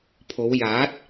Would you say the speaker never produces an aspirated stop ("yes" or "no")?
no